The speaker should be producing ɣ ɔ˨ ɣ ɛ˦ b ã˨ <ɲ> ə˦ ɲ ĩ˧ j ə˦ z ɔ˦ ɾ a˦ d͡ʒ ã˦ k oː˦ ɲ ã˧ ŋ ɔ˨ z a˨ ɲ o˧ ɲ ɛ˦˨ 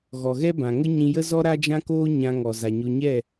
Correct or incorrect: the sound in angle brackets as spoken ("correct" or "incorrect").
incorrect